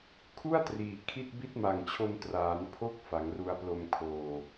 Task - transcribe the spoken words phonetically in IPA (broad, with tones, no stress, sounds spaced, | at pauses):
kʰ u˥˩ a̯ t r iː˩˦ kʰ i˥˩ t̚ b i˥˩ t̚ m a˨˩ ŋ t͡ɕʰ o˧ n t r aː˩˦ n pʰ o˥˩ k̚ f a˩˦ ŋ r u˧ a̯ p l o˧ m kʰ oː˨˩